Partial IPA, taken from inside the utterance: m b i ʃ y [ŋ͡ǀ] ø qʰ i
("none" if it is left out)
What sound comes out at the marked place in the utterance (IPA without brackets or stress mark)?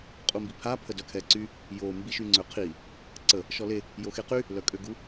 ŋ͡ǀ